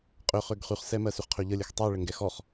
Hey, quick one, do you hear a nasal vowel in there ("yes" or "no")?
no